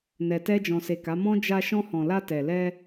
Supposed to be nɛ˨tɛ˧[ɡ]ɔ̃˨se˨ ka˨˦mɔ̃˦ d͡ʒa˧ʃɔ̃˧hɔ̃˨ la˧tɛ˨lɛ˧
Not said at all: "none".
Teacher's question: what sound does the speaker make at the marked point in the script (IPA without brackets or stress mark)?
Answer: d͡ʒ